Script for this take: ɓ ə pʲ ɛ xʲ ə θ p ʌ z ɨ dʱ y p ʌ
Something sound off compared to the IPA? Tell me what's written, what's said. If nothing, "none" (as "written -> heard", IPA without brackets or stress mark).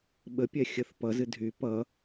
none